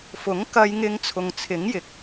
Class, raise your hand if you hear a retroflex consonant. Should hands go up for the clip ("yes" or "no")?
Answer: no